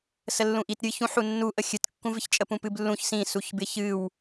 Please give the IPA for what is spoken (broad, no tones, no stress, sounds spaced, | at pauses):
s ə lː ũ ʔ i t ɾʲ ɨ ç ũ ħ u nː u ʔ ə xʲ ɨ t kː ũ v ɪ ç t͡ʃʼ ə p ũ p ɨ b lː ũ ç s ĩ s u ç b ɪ ç ɨ w